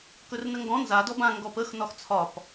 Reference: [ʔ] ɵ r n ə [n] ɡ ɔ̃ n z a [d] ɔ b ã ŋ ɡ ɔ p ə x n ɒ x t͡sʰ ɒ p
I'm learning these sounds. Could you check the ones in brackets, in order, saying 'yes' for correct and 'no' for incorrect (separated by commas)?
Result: no, no, yes